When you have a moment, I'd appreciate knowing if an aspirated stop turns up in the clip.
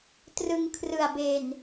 yes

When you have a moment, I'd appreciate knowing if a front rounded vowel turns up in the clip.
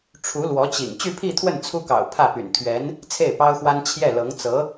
yes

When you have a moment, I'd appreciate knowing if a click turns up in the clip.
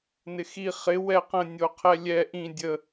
no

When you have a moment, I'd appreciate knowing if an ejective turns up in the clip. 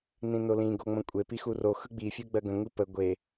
yes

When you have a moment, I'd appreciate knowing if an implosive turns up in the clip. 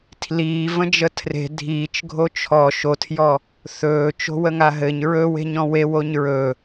no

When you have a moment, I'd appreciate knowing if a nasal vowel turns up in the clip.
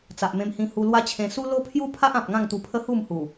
yes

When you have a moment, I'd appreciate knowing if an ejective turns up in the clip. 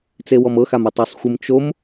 no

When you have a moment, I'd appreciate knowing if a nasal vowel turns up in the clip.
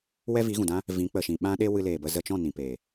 yes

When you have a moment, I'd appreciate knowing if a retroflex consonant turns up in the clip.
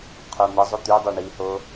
yes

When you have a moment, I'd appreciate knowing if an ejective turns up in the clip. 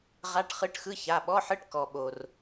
no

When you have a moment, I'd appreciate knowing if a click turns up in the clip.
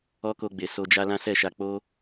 no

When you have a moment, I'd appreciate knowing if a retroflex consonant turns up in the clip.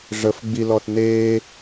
yes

